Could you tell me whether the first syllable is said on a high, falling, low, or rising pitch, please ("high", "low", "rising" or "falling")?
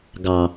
low